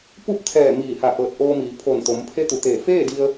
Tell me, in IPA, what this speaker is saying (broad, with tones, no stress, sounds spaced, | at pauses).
p u˥˨ p̚ t̪ʰ ɛː˧˩ m iː˧˩ h a˧˩ ʔ ɤː˧˩ t̚ ʔ oː˧ m iː˩˧ pʰ o˧˩ n t̪ o˩˧ m pʰ e˧˥ t̪ u˩ t̪ eː˧˩ f eː˥˨ d i˧ ə̯